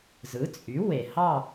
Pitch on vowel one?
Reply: rising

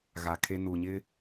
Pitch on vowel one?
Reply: low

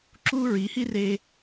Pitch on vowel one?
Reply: high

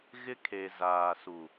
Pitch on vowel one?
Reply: high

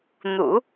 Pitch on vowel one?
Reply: low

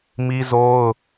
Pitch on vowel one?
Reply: high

